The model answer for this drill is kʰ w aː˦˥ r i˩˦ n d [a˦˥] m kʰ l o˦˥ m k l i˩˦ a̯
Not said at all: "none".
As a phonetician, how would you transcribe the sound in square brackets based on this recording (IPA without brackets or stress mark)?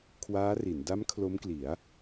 a˦˥